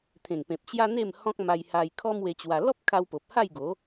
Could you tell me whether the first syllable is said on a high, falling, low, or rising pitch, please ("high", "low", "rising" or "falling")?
low